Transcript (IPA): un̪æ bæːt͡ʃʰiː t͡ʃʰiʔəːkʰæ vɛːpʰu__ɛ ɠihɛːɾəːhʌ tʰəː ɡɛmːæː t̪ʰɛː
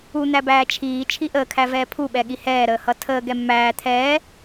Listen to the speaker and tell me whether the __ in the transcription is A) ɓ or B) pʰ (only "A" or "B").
A